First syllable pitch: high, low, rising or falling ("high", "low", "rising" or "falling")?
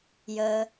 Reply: low